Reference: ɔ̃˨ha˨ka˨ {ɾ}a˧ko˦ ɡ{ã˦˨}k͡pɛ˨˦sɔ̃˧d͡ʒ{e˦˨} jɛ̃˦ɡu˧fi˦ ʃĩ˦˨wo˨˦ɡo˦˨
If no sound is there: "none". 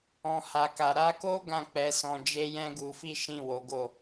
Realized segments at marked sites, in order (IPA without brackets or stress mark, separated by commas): ɾ, ã˦˨, e˦